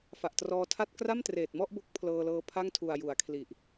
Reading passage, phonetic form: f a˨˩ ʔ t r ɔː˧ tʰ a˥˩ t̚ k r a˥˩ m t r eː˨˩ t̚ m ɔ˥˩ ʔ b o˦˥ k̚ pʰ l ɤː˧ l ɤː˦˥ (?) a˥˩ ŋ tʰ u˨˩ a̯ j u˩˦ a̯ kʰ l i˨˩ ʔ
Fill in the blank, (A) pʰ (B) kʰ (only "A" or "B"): A